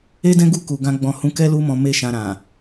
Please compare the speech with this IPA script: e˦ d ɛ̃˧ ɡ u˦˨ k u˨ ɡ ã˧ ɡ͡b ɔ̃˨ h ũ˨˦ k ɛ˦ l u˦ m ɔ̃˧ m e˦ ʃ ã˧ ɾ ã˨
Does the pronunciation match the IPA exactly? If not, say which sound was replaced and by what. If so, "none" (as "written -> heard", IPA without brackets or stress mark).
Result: ɛ̃˧ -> ɛ̃˦